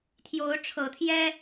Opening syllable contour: rising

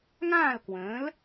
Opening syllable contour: falling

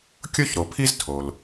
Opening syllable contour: high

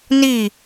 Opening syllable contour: falling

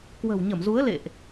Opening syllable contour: low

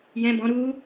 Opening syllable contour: high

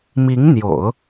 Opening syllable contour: rising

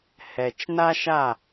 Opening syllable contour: low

